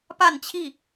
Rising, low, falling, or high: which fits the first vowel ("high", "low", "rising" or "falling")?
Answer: falling